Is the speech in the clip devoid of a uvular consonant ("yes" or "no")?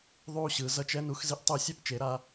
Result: yes